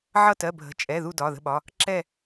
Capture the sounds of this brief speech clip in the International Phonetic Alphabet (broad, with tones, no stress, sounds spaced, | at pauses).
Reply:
ʕ ʌ˦˨ t ɜ˩˧˩ bʱ ə̤˩˧˩ t͡ʃʼ ɛ˩˧˩ ð u˦˨ d ɒ˩˧˩ ð ə̤˦˨ ɓ ɒ˩˧˩ | ǁ ɛ˦˨